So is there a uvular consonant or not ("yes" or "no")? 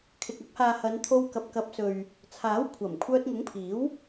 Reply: no